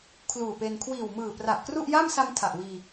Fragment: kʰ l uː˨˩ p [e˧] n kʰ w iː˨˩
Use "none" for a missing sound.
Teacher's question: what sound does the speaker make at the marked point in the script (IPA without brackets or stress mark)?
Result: e˧